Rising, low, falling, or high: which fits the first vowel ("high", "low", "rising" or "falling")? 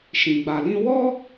low